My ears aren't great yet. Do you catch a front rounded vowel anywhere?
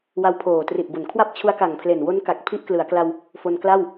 no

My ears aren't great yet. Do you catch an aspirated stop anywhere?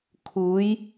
yes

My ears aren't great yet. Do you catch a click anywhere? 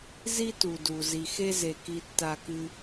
no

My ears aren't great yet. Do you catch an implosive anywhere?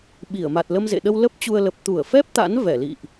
yes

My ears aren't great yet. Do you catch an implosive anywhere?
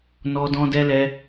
no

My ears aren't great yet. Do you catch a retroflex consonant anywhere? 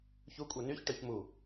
yes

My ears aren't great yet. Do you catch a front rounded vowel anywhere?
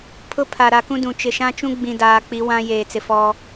no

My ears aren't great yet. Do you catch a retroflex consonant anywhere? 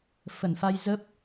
no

